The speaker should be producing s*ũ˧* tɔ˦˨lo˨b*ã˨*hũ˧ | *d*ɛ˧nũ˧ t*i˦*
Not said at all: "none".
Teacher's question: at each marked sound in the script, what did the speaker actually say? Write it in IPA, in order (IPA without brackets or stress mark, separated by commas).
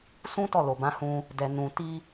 ũ˦, ã˨˦, d, i˦